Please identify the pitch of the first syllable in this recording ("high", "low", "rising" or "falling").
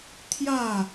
falling